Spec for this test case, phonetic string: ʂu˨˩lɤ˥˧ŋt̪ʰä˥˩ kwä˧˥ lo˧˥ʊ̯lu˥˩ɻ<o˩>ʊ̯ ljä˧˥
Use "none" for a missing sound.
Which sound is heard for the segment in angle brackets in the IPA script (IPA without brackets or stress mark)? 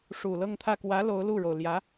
o˩